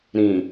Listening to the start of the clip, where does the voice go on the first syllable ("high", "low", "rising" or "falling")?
low